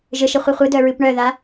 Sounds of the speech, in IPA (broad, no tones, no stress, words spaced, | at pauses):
ʒɘʃɘχʷi χʷɨdœɹɨp ɳœða